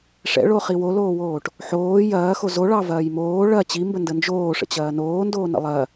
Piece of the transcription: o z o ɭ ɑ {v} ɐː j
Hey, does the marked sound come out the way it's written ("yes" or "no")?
yes